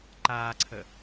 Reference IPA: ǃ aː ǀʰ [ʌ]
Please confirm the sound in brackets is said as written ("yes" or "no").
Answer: no